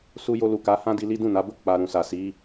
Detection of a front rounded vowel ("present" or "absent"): absent